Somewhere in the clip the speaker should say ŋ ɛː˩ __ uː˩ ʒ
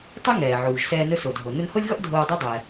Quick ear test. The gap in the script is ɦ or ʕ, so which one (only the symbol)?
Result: ʕ